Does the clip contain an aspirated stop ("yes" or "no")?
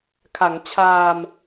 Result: yes